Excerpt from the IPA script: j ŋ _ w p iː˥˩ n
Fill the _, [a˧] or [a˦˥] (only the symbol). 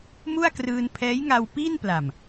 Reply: a˧